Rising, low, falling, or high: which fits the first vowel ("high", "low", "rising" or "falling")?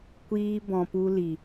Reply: high